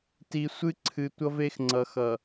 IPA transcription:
ti˨ sʷɨ˦ ǀʰɨ˨ tʷʌ˦ve˦xŋ͡ǀʌ˨xʌ˨

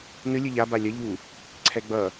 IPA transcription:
nɯ lʲɯʎa balʲʌ ʎu | ǀʰɛɡ͡bʌ

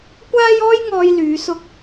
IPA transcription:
kʷaː˥jɔː˥jŋɔː˧j lyː˨˧sʊ˧k̚

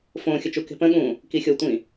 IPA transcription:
fõːxʲət͡ʃu ke̤pə̃ɠũː | kixʲotʷĩ

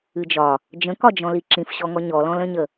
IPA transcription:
ɨd͡ʒɒ | d͡ʒə̃kɒd͡ʒɔ̃li ǁĩfɕɔŋɔ ɲɔlɔ̃lə̃ɲə

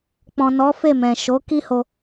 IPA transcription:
k͡pɔ̃˨nɔ˨˦fe˦˨ mɛ̃˨ ʃo˨˦ ki˦ho˧

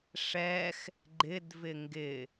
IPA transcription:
ʂɛx | ɡ͡ǃɪdvɪ ŋɡɪ

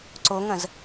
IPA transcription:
ǀoŋɐ̃z

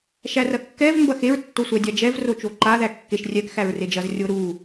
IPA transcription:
ʃærɐkːɛv mbɐxeɹ tːosʷædʲad͡ʒɛv rot͡ʃoǃa ðækːeʃ rʲɛk xæɹred͡ʒɐz rʲoɾu

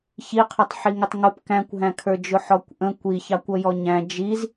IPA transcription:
çiqʰʌtˤ ħiŋɪtˤŋʊp kæ̃kʷɦæ̃kʰə˞d͡ʒʊ ħɔkʷʔə̃ kʷiçɑkʷ ʌjɔɲæ̃ d͡ʒiz

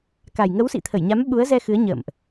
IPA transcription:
ka˨˩j ŋə˨˦wsḭ˧˨t̪ʰə˧˩jɲa˨˦m ɓu˨˦ə̯zɛ˧ xɨ˨˦ə̯ɲə̰ː˧˨mʔ

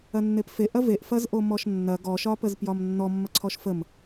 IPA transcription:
ɐnːepfe ʔɐveʔ fɐzʔomɔʃnːɐ ɡɔʃɒpəzpjɒm nːɔmːɐǀʰɔʃ fəm

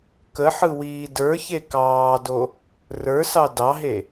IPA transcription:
kəħɯwiː də˞çe kɑːdo | rə˞sɑ dɑɦe

